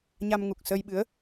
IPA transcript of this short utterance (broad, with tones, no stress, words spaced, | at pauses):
ɲa˧mŋu˨˩k̚sə˧jɓɨ˨˦ə̯